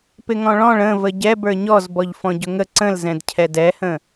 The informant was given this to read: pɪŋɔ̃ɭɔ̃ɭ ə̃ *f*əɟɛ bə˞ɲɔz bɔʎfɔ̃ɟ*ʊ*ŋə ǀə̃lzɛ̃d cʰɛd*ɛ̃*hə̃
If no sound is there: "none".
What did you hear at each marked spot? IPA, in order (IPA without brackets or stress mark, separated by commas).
v, ʊ, ɛ